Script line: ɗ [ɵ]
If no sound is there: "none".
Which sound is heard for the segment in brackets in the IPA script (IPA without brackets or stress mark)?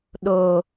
o